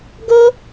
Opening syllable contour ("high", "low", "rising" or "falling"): high